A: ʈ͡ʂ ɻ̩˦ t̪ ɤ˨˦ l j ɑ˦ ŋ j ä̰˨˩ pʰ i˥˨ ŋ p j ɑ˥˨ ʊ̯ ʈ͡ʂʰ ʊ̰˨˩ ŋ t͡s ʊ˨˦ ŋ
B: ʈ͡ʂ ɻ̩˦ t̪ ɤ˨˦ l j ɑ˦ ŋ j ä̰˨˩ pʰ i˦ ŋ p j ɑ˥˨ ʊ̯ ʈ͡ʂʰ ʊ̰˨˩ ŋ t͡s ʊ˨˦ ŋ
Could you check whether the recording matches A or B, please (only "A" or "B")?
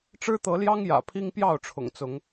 B